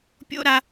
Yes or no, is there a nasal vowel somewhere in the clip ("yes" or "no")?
no